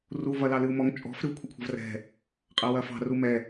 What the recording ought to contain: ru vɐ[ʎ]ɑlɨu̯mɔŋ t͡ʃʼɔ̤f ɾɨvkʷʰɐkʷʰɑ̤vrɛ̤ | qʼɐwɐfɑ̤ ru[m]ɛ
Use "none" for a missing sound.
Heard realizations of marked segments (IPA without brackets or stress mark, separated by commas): l, m